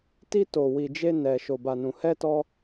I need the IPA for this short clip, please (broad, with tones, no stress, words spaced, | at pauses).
ti˧to˨ wi˨d͡ʒe˧nɛ˨ ʃo˨ba˨nũ˨ hɛ˧tɔ˧